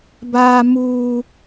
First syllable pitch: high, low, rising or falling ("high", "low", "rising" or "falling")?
high